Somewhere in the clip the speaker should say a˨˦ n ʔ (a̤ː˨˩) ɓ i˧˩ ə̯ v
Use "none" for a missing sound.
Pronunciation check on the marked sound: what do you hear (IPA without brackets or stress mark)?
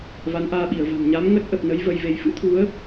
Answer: aː˧